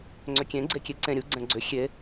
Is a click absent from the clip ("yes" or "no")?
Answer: no